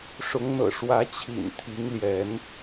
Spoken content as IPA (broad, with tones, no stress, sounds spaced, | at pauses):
ʂ ʊ˨˦ ŋ n̪ ɤ̰˨˩ ʂ w ä˨˦ t͡ɕʰ ḭ˨˩ n t̪ʰ i˨˦ ŋ l j ɛ˨˦ n